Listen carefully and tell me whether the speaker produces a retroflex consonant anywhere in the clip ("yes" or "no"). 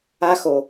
no